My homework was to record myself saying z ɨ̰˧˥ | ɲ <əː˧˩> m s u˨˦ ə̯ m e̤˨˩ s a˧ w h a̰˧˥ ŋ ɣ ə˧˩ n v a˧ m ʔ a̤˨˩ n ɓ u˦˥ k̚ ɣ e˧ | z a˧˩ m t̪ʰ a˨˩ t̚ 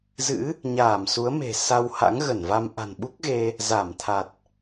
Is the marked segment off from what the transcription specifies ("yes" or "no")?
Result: yes